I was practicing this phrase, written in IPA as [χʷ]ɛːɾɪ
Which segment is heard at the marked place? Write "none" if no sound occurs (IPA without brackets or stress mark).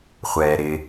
χʷ